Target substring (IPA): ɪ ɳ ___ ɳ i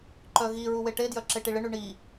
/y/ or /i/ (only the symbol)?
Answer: y